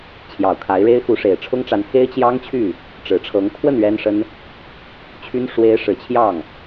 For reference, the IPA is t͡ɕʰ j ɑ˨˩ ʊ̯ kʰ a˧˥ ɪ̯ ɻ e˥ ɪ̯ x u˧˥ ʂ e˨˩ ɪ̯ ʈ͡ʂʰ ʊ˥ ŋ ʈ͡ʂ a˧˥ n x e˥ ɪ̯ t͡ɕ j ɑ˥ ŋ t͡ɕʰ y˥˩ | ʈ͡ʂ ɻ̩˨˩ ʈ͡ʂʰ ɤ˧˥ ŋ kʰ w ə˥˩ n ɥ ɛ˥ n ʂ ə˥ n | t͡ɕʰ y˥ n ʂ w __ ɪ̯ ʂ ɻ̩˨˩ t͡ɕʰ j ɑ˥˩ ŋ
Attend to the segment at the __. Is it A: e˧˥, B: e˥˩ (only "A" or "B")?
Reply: A